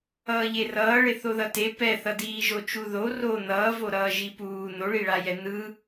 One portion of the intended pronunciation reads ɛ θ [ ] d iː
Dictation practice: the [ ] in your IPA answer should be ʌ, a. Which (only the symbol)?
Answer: ʌ